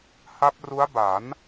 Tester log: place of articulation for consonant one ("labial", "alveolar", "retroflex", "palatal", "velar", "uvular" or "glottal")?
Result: glottal